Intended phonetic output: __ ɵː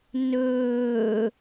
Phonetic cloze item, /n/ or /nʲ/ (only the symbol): n